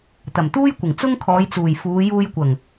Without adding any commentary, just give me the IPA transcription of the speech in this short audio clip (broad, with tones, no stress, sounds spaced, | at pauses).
t̪ ɐ˨˩ m t̪ uː˥ j kʷ ɪ˨˩ ŋ t͡s ʊ˥ ŋ kʰ ɔː˨˧ j t͡s uː˨˩ j f uː˨˧ j uː˧ j kʷ ɐ˨˩ ŋ